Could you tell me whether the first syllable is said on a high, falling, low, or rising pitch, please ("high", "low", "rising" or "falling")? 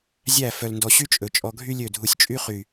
falling